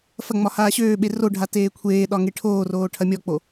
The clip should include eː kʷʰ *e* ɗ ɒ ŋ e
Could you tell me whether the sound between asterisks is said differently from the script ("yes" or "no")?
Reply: yes